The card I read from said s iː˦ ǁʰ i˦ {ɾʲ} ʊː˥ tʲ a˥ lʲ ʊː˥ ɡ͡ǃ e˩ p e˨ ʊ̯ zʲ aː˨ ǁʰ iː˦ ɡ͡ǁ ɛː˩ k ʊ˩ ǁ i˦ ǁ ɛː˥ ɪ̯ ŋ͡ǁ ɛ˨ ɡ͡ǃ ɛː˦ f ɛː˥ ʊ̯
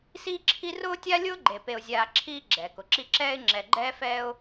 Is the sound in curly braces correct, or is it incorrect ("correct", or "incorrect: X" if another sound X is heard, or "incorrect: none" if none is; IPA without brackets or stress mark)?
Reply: incorrect: r